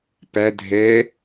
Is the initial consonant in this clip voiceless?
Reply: yes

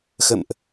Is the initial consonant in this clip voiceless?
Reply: yes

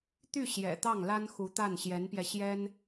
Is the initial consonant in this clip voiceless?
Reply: yes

